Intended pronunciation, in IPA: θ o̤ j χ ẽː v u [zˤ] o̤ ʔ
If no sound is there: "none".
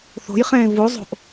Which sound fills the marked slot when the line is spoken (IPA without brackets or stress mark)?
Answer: zˤ